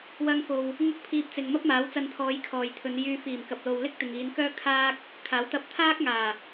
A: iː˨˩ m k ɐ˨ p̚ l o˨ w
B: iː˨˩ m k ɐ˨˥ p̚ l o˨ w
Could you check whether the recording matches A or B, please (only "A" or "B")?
A